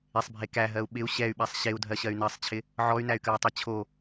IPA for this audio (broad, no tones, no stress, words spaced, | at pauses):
ɪsˤbʱe kæɦɜu̯ ɓɪu̯ ɕɛy̯ɓasˤ ɕeu̯dʱɜɕɜy̯ nɜsˤt͡ɕʰɪ | ʕɔy̯næy̯kɜu̯tˤe t͡ɕʰo